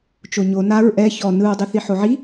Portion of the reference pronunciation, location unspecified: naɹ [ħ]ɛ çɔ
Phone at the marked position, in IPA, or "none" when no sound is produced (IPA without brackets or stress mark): ʔ